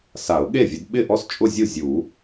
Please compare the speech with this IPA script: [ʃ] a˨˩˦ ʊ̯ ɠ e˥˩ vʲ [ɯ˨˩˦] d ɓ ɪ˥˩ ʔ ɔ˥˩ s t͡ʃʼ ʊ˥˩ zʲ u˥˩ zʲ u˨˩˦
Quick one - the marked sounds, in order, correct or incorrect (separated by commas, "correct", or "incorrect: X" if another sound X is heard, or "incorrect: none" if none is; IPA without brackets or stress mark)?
incorrect: s, incorrect: ʊ˨˩˦